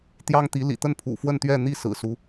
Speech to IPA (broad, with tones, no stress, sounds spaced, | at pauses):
t̪ j ɑ˥ ŋ t̪ i˧˥ l ḭ˨˩ t̪ ə˥˩ n pʰ ṵ˨˩ f w ə˥˧ n t̪ ɥ ɛ˥˧ n̪ i˥˩ s ɹ̩˨˩ s u˦